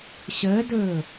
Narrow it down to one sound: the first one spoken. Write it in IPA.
ɕ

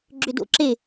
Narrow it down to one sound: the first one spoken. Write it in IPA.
ɡ͡ǁ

